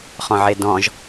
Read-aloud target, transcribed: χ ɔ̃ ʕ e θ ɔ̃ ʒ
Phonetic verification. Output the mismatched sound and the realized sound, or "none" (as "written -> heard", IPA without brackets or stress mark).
θ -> d